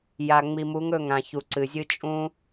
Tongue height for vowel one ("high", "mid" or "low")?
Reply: low